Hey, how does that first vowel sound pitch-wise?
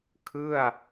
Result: falling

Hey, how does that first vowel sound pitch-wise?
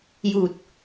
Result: low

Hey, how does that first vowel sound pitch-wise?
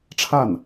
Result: falling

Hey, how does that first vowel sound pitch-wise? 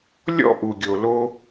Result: high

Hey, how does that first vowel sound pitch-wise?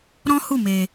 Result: high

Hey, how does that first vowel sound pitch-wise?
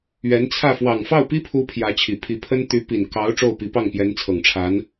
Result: rising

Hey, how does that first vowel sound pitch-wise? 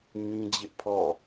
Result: high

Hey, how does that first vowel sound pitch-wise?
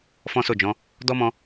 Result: high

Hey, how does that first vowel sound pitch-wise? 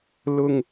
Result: low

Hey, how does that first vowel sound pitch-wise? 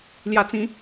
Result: high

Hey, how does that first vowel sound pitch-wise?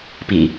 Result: low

